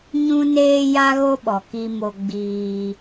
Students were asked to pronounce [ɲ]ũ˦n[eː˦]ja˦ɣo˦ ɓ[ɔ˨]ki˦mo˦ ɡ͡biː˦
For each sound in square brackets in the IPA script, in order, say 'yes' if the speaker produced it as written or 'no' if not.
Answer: yes, yes, yes

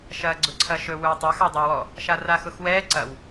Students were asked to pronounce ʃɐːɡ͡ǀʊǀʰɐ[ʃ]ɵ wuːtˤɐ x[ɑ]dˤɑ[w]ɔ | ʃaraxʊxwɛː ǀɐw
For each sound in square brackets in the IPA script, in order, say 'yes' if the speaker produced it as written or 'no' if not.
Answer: yes, yes, yes

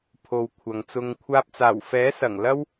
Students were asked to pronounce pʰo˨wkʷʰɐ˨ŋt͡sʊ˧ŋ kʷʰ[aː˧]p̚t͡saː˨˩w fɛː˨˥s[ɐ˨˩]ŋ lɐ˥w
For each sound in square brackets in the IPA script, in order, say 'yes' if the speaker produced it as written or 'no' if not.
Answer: yes, yes

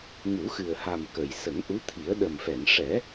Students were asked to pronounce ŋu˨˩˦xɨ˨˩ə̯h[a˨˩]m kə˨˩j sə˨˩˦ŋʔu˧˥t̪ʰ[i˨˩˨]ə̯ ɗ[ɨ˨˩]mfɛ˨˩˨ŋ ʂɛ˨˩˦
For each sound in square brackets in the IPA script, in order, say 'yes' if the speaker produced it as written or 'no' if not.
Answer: yes, no, no

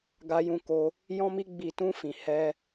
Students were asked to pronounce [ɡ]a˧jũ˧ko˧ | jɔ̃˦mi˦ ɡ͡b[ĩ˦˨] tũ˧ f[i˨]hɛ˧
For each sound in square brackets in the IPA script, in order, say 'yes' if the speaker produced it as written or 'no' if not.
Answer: yes, no, no

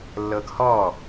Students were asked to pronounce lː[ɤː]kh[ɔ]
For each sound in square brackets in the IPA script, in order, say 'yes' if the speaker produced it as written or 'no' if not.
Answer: yes, no

